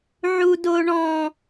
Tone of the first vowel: high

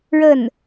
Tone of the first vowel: falling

